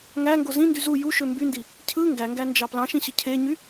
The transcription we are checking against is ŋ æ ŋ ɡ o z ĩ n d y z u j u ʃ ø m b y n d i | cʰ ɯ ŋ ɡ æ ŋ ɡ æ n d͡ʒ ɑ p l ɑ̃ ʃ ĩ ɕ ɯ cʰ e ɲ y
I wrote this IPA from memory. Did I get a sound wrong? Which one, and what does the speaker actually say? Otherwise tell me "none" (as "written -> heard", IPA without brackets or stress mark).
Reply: none